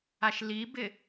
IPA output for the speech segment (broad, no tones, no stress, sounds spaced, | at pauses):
a ʃ l i b ɪ